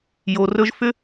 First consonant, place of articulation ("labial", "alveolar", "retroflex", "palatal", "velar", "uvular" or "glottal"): palatal